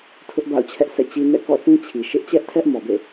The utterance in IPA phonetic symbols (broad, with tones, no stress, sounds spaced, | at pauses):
tʰ ʊ˦ ʔ b a̰˦˨ ʊ̯ t͡ɕʰ ɛ˦ ʔ sʰ ɛ̰˦˨ t͡ɕ i˦ n ɛ̰˦˨ k ɔ̰˦˨ θ ĩ˦ t͡ɕʰ i˨ ʃ ɪ˦ ʔ t͡ɕ ɛ˦ ʔ tʰ ɛ˦ ʔ m ɔ˨ b ḛ˦˨